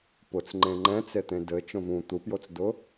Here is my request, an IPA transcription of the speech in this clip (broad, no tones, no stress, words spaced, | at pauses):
pʊt͡s ŋ͡ǃẽŋ͡ǃɛ̃t͡set̪ẽ dɘ t͡ʃõvũ t̪upjot͡sdʊ